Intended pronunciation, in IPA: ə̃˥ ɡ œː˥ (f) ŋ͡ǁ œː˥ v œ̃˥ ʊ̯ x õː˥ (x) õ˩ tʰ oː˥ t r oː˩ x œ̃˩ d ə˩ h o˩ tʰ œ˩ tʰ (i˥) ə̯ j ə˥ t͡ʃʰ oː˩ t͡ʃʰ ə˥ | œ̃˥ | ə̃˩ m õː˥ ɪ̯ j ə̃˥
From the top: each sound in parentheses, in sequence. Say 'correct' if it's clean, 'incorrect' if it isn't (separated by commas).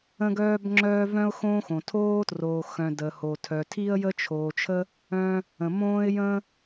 incorrect, correct, correct